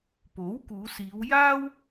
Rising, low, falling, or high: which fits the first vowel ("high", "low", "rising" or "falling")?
rising